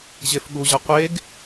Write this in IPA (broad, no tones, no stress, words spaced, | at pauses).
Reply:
ʑefɠuʑʌ qʷeɡ